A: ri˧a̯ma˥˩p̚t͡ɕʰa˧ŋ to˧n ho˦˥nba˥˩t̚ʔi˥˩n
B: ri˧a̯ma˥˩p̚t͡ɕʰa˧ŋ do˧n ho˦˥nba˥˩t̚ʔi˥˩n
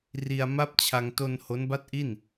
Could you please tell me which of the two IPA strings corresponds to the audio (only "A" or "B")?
A